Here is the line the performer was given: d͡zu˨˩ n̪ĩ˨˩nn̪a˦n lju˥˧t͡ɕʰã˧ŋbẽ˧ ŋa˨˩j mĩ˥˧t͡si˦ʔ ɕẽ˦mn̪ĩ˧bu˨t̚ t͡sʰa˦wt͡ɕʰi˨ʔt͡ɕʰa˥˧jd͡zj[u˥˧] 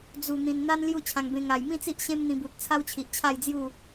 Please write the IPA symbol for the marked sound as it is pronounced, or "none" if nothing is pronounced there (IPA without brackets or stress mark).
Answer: u˥˧